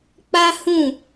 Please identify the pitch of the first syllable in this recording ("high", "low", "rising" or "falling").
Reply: high